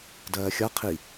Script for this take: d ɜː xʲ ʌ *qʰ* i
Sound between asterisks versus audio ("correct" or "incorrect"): correct